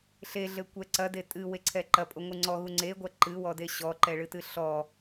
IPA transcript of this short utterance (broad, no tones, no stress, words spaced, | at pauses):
ɬeɮɘkʷɛ ǀɐde tʼɨweǀʰɛ ǃɐpʼoŋʷɨ ŋ͡ǀɔɣu ŋ͡ǀeɡʷɐ ǃɨwɔde ɕɔǃɛɭɨtɨ ɬɔ